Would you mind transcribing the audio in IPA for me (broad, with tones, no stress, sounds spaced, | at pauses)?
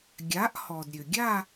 ɡʲ a˨˥ ʔ h ɔ˩ d ɾʲ ø˩ ɡʲ a˥˧